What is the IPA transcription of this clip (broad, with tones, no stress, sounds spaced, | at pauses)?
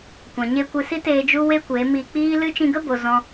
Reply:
kʷ ã˨ ɲ e˧ kʷ ɨ˧ s i˦ t eː˧ d͡ʒ u˦ w e˦ kʷ e˨˦ m iː˧ k͡p iː˦ l ɨ˦ t͡ʃ ĩ˧ ɡ ə˦ b o˨ z ɔ̃˧